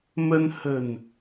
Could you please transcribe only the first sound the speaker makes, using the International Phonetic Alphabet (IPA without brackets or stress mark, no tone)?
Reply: m